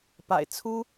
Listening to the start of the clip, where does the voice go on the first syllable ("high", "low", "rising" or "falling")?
low